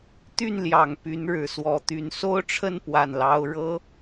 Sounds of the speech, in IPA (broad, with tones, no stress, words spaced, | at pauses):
t̪y˥˩nljɑ˨˩ŋ py˧˥nɻɻ̩˨˩swɔ˧˥t̪y˧˥n so˥ʊ̯ʈ͡ʂʰə˥˧n pwa˥˩nlɑ˥ʊ̯ ɻɤ˥